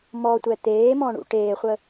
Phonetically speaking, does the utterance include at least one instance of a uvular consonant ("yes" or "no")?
yes